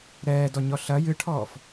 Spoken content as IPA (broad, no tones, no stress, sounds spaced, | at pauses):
ɾ ɛː d ɔ ɲ ɔ ɬ ɐ j ɨ ʈʰ ɔː f